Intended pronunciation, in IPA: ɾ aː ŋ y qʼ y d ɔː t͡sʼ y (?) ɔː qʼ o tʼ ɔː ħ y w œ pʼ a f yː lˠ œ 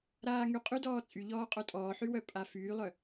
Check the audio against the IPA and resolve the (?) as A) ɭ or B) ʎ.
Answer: B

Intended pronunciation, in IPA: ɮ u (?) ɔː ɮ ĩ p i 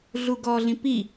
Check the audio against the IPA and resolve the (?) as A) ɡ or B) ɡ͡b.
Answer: A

